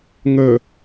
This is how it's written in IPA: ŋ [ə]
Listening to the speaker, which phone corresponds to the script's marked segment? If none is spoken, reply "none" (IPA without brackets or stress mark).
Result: ə